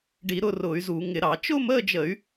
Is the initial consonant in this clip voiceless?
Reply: no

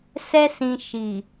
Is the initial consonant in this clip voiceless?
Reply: yes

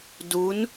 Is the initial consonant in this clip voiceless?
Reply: no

